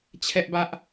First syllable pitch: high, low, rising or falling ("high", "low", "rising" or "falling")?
high